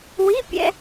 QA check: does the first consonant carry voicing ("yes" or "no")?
yes